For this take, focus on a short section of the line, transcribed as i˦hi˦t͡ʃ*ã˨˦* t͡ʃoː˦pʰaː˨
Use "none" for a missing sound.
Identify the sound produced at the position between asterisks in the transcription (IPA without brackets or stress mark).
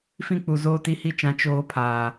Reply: ã˨˦